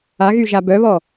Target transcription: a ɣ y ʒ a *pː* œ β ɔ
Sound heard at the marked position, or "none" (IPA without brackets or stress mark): b